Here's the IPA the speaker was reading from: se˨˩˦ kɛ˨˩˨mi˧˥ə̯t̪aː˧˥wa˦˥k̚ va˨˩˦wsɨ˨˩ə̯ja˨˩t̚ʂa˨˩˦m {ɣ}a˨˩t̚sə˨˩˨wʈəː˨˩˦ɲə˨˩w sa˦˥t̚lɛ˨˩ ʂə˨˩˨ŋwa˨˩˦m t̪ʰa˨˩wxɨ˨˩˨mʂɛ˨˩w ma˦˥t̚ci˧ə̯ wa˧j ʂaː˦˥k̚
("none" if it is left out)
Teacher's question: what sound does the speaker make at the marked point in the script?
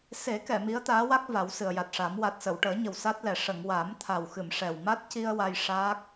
w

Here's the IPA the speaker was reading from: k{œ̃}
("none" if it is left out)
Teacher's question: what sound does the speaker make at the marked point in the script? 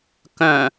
œ̃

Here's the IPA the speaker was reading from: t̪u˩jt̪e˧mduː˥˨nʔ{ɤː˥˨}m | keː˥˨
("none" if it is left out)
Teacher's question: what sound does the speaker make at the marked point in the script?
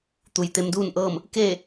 ɤː˥˨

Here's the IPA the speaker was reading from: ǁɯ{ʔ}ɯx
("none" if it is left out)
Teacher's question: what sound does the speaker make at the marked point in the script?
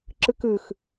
k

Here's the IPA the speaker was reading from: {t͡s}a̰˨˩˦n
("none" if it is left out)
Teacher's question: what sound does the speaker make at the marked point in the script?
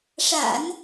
ʂ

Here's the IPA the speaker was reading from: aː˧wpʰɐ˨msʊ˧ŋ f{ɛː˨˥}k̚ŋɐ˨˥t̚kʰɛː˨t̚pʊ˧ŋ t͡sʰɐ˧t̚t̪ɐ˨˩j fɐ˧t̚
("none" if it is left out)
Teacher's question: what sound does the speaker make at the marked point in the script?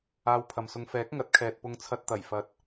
ɛː˨˥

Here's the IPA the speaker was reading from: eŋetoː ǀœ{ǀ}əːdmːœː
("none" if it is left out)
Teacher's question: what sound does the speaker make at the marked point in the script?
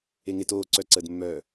ǀ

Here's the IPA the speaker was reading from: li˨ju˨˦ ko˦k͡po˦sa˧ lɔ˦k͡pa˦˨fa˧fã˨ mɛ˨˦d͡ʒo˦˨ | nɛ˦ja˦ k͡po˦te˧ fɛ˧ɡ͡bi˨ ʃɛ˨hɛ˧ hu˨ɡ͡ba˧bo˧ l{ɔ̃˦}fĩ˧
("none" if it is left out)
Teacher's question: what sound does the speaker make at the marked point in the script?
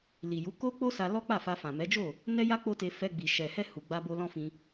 ɔ̃˦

